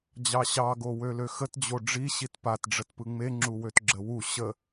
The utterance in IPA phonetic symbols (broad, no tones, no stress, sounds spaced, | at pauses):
d͡ʑ ɑ ɕ ɑ ɡ o w ø l ø x ə t d͡ʑ o ɖ͡ʐ i ɕ i t p a t ɖ͡ʐ ə t p ɯ ŋ͡m e ŋ͡ǁ u w ø t ɡ͡ǁ ə w u ɕ ə